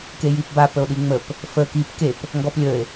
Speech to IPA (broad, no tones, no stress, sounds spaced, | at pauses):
k e j i p b a p ə o̯ ɗ i ŋ͡m ə p | f ə k i p k e p | ŋ ɡ ɔ p lʲ ə e̯